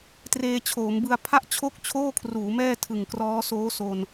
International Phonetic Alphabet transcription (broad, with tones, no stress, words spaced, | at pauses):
treː˧t͡ɕʰoː˩˦mbɯ˧a̯ pʰa˥˩ʔt͡ɕʰo˥˩k̚ t͡ɕʰoː˥˩kʰruː˩˦mɛː˥˩ tʰɯ˨˩ŋkrɔː˦˥soː˦˥so˧n